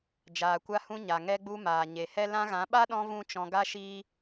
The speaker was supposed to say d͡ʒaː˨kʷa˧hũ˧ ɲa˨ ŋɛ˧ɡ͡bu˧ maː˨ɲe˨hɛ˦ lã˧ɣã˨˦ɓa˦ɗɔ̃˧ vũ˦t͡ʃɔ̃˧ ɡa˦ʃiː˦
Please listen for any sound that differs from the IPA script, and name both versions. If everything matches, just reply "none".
none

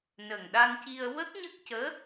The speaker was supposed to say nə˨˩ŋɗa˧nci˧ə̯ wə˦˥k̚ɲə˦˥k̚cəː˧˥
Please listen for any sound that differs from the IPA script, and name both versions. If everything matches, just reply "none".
none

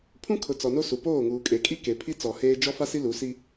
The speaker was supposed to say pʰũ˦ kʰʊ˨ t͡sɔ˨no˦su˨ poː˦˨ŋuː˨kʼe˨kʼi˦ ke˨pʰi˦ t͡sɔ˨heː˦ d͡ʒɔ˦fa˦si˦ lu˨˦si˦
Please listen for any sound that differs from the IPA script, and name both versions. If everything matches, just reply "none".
none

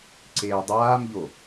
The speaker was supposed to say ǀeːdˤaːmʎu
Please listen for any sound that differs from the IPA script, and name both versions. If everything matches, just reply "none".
u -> o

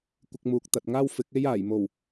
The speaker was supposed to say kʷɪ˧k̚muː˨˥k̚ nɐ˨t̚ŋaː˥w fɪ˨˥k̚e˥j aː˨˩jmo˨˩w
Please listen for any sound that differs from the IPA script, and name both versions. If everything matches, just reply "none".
n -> t̪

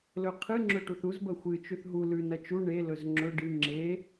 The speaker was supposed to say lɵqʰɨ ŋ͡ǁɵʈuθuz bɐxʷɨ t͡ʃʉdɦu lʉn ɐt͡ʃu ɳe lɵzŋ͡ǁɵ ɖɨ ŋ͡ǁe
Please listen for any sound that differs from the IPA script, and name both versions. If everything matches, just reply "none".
d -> θ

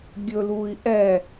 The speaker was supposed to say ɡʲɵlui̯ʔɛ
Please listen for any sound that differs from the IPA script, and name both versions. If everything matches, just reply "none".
none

